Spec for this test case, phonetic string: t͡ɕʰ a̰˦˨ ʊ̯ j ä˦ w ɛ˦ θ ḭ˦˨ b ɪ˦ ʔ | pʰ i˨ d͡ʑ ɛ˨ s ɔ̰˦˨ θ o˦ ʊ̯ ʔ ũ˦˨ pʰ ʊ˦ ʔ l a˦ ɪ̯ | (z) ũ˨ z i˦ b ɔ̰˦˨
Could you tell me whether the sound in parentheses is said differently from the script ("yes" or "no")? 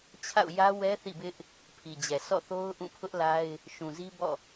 yes